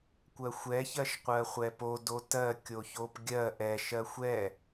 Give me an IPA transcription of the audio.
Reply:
kʷ ɜ xʷ ɛ ç ɜ ʃ qʷ ɜ χʷ ɛ p o d o t ɜ kʲ o ç o p ɡʲ ɜ ʔ ɛ ʃ ɜ xʷ ɛ

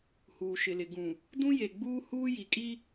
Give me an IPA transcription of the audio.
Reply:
h uː˨ ʃ ɪ˨ l ɪ˨ ɡ ũ˨ | d ũ˦ j e˨ ɡ͡b uː˦ h uː˦ j i˨ kʼ i˦

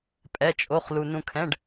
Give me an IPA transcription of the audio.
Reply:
pʼ ɛ˧˥˧ t͡ʃʼ o˧˥˧ χ l u˧ n ũ˧ kʰ ɛ̃˧˥˧ ɖ

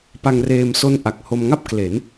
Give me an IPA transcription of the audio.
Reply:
p a˧ ŋ r eː˧ m s o˦˥ n ʔ a˨˩ k̚ h o˧ m ŋ a˥˩ p̚ k l e˩˦ n

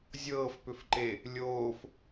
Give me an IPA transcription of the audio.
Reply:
zʲ ɤː f p ʏ f ǃ e | lʲ oː f

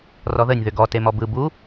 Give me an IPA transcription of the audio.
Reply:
r ɔ ð ə nʲ ð ʏ ɡ ɔ t e m ɔ b ɯ b u

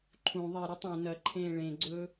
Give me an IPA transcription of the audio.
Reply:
ǃʰ ũ ðˤ e ɾ ʉ tˤ õ n ɐ ǃʰ ẽː ɭ ẽ ɡ͡ǀ ɵː

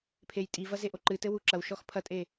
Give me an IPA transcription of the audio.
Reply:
pʰ e j tʼ i v ɐ z e ʔ o ǃ ɨ t ɘ w u ǁ ɐ w ʃ ɔ x pʰ ɐ tʼ e

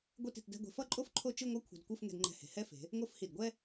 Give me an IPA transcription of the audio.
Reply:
ɡʷ e˥˧ t i̤˩˧ t d ɛ̤˥˧ ɡʷ e̤˧ f ʌ˥˧ ǃʼ o˥ f ǃʰ o˥˧ t͡ʃ ɯ˥˧ ŋʷ ʌ˥˧ kʷʰ ɛ̤˧ d kʷ ɯ˥˧ f ŋ ɛ̤˧ d ŋ͡ǃ ɛ̤˧˩ h e̤˩˧ h ɛ˥˧ f e̤˩˧ | ŋ o˥˧ f h i˧˩ d ɡʷ ɛ˥

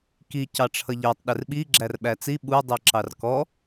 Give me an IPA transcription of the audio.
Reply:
k i c ɑ ʈ͡ʂʰ ʌ ʎ ɜ tˤ ɗ ɪ r ɓ i ɡ͡ǁ æ r ɓ æ t͡s i ɓ u dˤ i ǁ ɑ r k ɔ

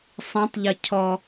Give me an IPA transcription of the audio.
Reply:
sˤ ɐ̃ tˤ ʎ ɐ cʰ ɔ

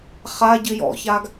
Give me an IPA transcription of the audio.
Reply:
χ a ɟ ɨ j ɔ̰ ç a ɡ

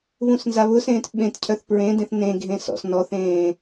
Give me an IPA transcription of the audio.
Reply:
β ũ s n z a β ʊ s ẽː t ɓ ẽ t cʰ œ θ p ɹ ẽ d ẽ θ n ẽ ɡʱ ẽ s ɔ̰ s n ɔ θ ẽː

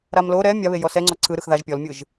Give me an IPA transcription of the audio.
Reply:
ɾ a m l o ɾ ɛ mʲ a β e j ɔ s ɛ ŋ͡ǀ ɔ ǀʰ ɯ ɾ ɯ x ð a ʒ pʲ ɔ l mʲ ɯ ʒ

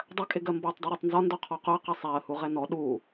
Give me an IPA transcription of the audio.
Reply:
dˤ ɜ kʼ ɪ ɡ ɜ m b ɒ tˤ dˤ ɛ ɾ ɒ tˤ n z ɒ n d ɔ qʰ ɔ q ʊ ə̯ q ɪ sˤ æ ə̯ h u ʁ ɛ n ɔ ɗ u

